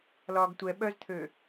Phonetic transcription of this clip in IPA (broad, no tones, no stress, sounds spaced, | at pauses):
l ɒː ɡ tʷ ɛ ɓ œ z t̪ʰ ø